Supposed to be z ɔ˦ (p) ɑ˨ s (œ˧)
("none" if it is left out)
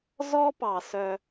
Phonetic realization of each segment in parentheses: p, œ˧

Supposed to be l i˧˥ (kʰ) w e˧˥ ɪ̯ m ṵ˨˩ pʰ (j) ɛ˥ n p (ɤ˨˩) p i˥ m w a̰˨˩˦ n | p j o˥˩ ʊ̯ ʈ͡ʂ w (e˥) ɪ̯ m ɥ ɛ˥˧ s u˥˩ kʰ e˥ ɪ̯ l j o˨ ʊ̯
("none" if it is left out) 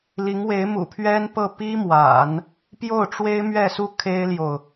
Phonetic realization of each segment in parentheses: ŋ, ɥ, ɤ˥˩, e˥

